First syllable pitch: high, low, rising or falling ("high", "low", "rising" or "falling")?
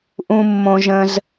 high